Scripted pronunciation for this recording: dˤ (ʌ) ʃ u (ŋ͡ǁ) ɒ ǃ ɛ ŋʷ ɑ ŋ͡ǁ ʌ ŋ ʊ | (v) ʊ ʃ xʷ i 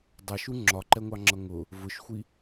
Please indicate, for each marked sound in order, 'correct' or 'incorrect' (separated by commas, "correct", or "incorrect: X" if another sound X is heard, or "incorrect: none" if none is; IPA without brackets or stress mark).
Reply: correct, correct, correct